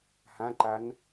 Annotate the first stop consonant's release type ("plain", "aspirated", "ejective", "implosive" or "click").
click